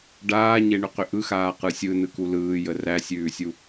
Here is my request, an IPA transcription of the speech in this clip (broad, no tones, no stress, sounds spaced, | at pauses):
ɖ aː ɲ e ɳ ʏ q ʏ ʔ ɯ x aː q ɯ sʲ ɯ n ɯ k u l ɯː j ə r æ sʲ ʉː sʲ u